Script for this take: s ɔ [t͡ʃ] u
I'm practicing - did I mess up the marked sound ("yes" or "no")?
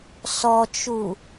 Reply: no